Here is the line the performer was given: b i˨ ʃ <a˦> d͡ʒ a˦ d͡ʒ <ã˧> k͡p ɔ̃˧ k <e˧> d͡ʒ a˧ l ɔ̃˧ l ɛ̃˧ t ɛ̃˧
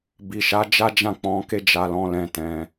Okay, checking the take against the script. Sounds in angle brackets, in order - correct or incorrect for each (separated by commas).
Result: incorrect, incorrect, incorrect